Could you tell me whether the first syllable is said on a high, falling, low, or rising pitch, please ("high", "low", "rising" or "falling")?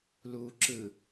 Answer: low